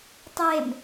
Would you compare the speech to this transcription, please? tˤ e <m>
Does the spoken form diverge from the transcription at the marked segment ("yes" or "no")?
no